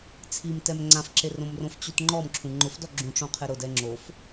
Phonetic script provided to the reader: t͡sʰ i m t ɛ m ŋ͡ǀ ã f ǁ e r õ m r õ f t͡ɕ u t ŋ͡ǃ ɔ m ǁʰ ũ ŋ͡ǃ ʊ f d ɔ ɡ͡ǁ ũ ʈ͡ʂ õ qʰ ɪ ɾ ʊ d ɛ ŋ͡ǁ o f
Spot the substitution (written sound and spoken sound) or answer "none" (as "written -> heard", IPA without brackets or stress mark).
none